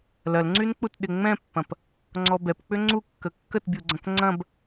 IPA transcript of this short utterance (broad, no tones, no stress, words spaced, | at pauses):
lɐlŋ͡ǀynk͡put ɗɪŋ͡mɛ̃pːɐ̃p | ŋ͡ǀɔbɛpk͡pʏ ŋ͡ǀukːə kːətbʲuɡ͡ǀɐ̃k ŋ͡ǀɐ̃b